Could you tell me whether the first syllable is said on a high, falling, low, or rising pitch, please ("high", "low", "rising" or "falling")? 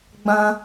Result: high